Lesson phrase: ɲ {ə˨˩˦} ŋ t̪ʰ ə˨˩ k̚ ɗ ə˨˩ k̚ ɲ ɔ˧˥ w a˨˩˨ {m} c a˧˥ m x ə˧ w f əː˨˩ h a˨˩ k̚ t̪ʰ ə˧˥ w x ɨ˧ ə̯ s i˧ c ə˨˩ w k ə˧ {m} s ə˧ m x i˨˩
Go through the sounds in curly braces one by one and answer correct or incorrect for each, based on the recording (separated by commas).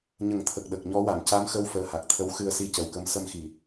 correct, correct, correct